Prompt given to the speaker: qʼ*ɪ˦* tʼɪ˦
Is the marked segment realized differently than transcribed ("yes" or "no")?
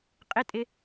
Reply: no